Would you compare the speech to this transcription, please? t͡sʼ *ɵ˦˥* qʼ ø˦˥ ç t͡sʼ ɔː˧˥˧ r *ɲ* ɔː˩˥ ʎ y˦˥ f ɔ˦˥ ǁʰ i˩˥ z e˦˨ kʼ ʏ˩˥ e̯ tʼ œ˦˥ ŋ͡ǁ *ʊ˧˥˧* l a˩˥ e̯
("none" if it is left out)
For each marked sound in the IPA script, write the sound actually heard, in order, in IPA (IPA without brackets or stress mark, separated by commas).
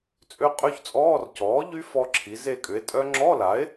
ø˦˥, c, ɔ˧˥˧